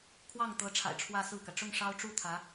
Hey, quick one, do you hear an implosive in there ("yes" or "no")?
no